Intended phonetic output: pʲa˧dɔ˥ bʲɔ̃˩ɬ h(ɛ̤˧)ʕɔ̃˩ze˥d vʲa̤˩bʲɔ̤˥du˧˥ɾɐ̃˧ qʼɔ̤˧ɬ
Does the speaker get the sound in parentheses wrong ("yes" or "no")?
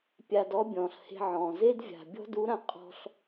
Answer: yes